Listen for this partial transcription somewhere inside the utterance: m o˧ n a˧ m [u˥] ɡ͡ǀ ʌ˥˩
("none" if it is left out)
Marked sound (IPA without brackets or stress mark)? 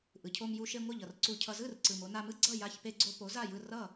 ɯ˥